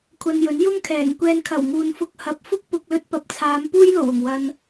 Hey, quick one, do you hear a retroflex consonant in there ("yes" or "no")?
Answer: no